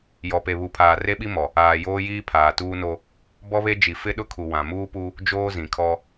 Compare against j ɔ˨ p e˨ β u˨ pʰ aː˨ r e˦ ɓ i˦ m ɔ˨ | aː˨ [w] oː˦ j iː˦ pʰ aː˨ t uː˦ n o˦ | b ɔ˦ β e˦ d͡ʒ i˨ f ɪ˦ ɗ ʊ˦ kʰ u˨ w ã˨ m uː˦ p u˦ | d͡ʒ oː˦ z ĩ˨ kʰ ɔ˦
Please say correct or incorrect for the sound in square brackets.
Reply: incorrect: j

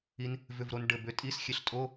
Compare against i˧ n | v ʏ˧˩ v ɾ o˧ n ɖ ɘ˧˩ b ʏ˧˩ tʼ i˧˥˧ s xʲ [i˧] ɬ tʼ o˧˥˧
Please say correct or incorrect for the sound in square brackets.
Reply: incorrect: e˧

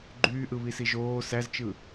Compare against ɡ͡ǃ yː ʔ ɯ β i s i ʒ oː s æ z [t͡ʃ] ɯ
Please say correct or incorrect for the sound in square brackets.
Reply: correct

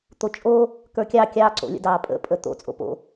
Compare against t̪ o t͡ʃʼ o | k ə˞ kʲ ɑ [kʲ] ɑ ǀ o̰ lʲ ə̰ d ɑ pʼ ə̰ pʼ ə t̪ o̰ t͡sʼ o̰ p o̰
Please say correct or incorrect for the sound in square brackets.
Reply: correct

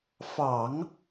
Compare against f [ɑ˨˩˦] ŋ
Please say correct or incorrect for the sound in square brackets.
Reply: correct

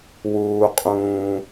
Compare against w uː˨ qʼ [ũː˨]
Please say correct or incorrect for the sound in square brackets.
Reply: correct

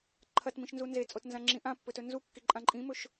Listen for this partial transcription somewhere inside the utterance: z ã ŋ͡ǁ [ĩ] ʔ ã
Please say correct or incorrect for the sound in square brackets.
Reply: correct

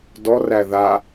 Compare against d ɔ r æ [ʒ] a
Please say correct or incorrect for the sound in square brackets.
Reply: incorrect: ð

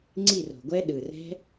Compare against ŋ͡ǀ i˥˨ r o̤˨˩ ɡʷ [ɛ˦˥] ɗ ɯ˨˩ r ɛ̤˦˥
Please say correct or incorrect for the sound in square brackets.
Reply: correct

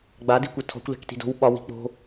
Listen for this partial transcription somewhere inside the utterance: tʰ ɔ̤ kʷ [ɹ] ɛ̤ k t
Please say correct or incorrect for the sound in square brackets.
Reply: incorrect: l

